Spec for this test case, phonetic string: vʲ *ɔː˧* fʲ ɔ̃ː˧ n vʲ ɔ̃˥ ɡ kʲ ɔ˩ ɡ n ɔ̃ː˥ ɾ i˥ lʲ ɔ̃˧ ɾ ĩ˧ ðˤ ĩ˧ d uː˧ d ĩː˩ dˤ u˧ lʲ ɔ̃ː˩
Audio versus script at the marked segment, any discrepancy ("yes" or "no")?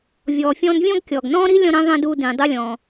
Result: yes